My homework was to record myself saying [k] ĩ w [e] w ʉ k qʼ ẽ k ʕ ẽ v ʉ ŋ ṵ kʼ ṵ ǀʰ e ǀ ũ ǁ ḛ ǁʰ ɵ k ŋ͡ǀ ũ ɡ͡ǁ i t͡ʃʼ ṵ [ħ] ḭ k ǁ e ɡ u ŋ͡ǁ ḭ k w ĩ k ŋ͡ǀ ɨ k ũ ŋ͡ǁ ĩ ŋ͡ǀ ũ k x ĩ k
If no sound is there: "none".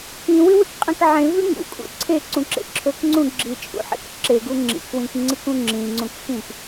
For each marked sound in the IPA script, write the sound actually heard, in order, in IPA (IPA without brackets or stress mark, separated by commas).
k, ɨ, ħ